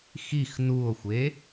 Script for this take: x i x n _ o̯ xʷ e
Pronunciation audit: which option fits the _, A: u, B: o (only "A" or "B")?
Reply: A